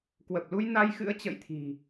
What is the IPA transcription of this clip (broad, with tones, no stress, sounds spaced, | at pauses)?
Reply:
k w ə˨˩ p̚ l u˧ j n a˧ j x ɨ̰˧˥ ə̯ t͡ɕ ə̰ː˧˨ j t̪ʰ i̤˨˩